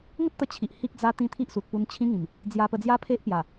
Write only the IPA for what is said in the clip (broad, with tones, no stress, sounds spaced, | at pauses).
ŋ ə˦ t̚ t̪ ə˧ t͡ɕʰ i˨ ʔ h i˦ k̚ d͡z a˦ t̪ ĩ˦ t̪ʰ i˦ ʔ s u˨ t̚ p u˧ n t͡ɕʰ ĩ˧ ŋ ĩ˨˩ m | d͡z j a˧ p ə˧ d͡z j a˦ pʰ e˦ ʔ p j a˨˩